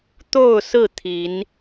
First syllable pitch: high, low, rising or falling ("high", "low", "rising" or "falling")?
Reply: falling